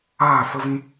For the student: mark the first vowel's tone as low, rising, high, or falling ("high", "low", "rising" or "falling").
falling